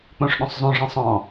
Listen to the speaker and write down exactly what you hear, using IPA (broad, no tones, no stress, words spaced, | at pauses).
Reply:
k͡põʂɗõsˤzˤõʐɛ̃sˤ ɔ̃